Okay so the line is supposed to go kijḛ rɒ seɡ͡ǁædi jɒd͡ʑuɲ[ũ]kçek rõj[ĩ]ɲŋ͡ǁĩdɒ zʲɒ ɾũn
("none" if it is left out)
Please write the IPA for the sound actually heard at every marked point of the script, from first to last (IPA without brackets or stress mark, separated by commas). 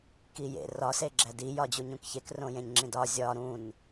ũ, ẽ